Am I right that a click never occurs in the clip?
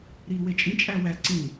no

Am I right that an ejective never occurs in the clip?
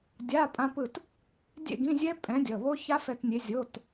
no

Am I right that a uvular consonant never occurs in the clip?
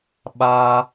yes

